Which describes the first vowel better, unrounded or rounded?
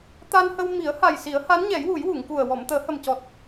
unrounded